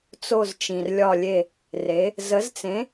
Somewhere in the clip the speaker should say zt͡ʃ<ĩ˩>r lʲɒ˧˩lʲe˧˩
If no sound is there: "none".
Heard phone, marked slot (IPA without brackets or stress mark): ĩ˩